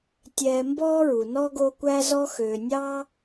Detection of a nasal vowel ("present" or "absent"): absent